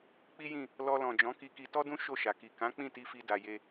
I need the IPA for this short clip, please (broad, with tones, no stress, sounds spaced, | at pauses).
k͡p i˦ j ĩ˦˨ | l ɔ˧ l ɔ̃˨ d͡ʒ ɔ̃˨˦ k i˧ k i˧ t ɔ˦ d ũ˦ ʃ o˦˨ ʃ a˨ k i˨ k ã˨˦ k͡p ĩ˦˨ t i˧ f i˧ d a˧ j e˦